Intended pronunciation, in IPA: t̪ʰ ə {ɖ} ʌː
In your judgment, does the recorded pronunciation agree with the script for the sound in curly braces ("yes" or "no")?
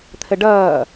yes